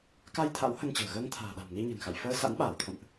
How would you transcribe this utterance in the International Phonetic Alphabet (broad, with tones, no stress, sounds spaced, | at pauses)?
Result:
k a˧ j t̪ʰ a̰˧˥ w h ə˧ n t͡ɕ ə̤ː˨˩ ɣ əː˧ ŋ t̪ʰ a̤ː˨˩ ɗ a̤˨˩ m n i˧ ɲ ə̤˨˩ n x a̰˧˨ j f əː˧ s a̰˧˥ n ɓ aː˧˩ w t̪ʰ ə̰˧˨ m ʔ